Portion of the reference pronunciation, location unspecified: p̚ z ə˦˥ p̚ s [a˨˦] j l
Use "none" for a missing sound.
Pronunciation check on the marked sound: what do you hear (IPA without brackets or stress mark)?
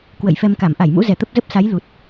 a˨˦